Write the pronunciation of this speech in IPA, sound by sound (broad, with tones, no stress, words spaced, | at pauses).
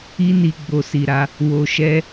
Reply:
i˦ni˧ ɡ͡bo˦si˧ɾa˦ | wo˧ʃɛ˦